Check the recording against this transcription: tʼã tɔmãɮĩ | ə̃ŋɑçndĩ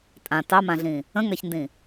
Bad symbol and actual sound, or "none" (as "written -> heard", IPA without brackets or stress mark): ɔ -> ɑ